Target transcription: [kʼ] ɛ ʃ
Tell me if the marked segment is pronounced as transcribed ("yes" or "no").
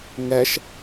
no